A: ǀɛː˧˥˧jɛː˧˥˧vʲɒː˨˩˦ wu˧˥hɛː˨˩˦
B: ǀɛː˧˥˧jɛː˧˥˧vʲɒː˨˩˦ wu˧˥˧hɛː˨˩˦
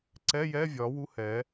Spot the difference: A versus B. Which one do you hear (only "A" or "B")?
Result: A